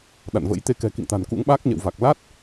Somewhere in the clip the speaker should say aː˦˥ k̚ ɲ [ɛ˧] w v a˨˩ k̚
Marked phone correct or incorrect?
incorrect